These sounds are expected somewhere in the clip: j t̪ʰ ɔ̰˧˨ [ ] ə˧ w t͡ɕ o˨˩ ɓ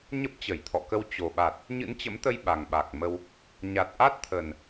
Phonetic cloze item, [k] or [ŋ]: k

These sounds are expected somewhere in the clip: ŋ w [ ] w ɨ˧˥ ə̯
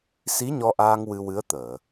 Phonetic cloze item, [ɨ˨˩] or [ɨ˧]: ɨ˧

